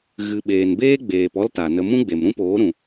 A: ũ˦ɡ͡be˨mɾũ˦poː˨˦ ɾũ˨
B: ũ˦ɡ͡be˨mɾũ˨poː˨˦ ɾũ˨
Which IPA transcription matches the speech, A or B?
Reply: A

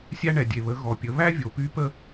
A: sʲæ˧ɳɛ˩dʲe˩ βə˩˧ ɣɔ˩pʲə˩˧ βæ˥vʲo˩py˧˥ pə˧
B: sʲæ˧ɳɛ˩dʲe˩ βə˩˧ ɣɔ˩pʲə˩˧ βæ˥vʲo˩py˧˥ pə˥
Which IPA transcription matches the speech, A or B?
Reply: B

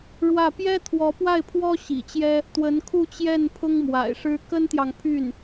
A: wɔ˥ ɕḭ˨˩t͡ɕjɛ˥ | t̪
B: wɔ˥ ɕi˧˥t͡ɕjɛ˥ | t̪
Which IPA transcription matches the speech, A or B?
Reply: A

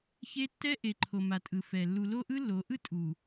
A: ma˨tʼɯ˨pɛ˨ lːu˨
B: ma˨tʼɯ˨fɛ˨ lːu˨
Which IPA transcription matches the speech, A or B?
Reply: B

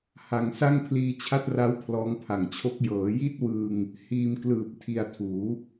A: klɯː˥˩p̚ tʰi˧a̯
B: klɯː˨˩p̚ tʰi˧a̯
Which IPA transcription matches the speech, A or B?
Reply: B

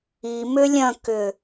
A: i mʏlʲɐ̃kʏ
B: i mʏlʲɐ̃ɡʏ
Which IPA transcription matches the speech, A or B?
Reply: A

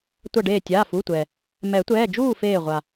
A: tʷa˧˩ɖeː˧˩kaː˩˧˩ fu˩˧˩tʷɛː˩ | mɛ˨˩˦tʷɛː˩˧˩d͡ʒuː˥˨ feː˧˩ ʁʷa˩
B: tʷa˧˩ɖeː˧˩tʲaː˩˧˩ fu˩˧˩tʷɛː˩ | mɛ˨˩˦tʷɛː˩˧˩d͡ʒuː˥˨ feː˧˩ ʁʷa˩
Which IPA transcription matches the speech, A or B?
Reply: B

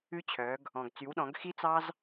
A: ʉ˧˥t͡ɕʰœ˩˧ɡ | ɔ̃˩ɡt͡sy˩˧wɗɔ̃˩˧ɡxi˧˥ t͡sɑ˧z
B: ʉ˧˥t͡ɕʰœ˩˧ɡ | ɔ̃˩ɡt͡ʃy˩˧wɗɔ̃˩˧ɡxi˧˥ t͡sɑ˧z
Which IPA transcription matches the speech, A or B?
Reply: A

